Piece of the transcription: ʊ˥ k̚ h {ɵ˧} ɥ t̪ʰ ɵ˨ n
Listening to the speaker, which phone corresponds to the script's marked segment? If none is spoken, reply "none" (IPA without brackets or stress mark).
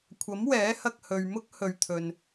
ɵ˨˧